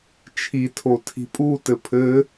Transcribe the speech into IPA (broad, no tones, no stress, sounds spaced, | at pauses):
t͡ʃʰ i tʰ o tʰ i̤ pʼ u t ɘ pʰ ɘ